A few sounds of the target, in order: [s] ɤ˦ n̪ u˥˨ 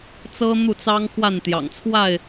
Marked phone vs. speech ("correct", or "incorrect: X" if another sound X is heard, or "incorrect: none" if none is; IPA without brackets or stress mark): incorrect: t͡s